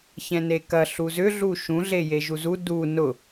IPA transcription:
çɛ̃nekɐ ɬuzʏ ɮuʃũ ɮejeʒuzu du nʊ

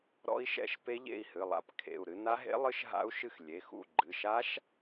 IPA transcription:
ɾɔ̰˦˥i̯ʃɛ̰˦˥ʃ pe˦˥ʎḛ˥˨i̯ hɨ˩˧˩lˠa̰˦˥p kʰḛ˩˧˩u̯ɾɨ˦˥ na˦˥ɦḛ˦˥lˠɨ˦˥ʃ ɦa̰˦˥u̯ʃɨ˥˨x lʲe˩˧˩xṵ˥˨ ɡ͡ǃɨ˩˧˩ ʃa˦˥ʃ

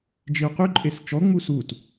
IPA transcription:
d͡ʒiu̯qyǃʼes t͡ʃɔŋ͡mu sut

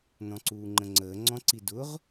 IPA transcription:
nɔ̃ǀuːŋ͡ǃə̃ŋ͡ǀəː ŋ͡ǀɔ̃ǀidʊʁ

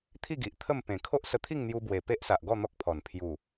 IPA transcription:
t̪ʰi˥˧ɡi˨ʔ t̪ʰə˥˧mpẽ˨˩ kʰo˦ʔsə˧t̪ʰi˥˧ŋn̪ju˧ bwe˨˩pe˦ʔsa˨ʔɡɔ˥˧ n̪ɔ˦k̚pʰɔ˨˩n pʰju˨˩

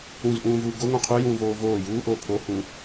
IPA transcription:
ũzʔũːvuː ɡoŋõ qʰujũːvoː voː juːʔoː pʰohũ

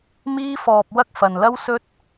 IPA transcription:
miː˧fɔː˨p̚ wɐ˥k̚fɐ˨nlɐ˥wsɵ˥t̚

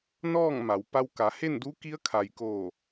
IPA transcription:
nɔː˥˨ŋma˩˧w pa˧wka˩˧ he˥˨ndu˧˥ki˧˥ə̯kʰa˩j koː˧˩

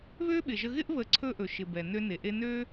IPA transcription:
βø˦ɓɪ˨ʒə˧ ɣɪ˦ʔβə˨˦ǀʰɵ˧ ʔɵ˨ʃɪ˨ bɛ˨nø˧ne˨ʔe˧ nø˦

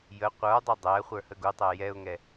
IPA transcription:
jə qʷə˞dˤʊ dˤæχʷə˞ həɡutˤæ jɛʊ̯ŋɛ

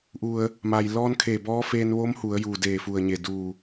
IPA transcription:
ʔu˩ə̯ | ma˩j lɔː˧nkʰeː˧˩bɔː˧˥feː˧n ʋo˧˥mhu˩˧ə̯juː˩deː˧˩ fu˧˩ə̯ɲe˧˩duː˧˩

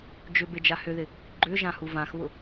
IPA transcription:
d͡ʒʏbe d͡ʒahʏðɪ | ɡ͡ǃʏ ʒãhuvãxβʊ

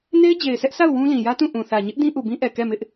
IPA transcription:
ne˦ɪ̯d͡ʑe˨ɪ̯sɛ˦ʔsa˦˨ʊ̯ wũ˦ lĩ˨jä˦tũ˦˨ ʔũ˨θä˨ ɲɪ˦ʔ dĩ˦ʔu˨bĩ˦ʔɛ˨ kɛ˦˨mɪ˦ʔ

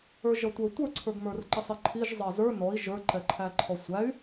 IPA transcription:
ə˞ʒʌtʷə˞ tʷə˞ǀʰə˞ɡmə˞rǃə sˤiǃʰiʒ zˤɑzə˞ nɔi̯ ʒə˞ǃɛǃʰæ ǃʰɔsʷæy̯

